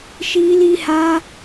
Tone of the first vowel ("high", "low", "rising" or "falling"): high